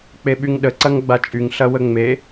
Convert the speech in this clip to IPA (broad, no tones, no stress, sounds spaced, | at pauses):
k͡p e ɓ y ŋ ɗ ə ǀ ɐ ŋ ɡ͡b a t͡ʃʼ y ŋ ɬ ɐ w ə ŋ͡m e